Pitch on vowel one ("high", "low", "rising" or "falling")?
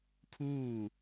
falling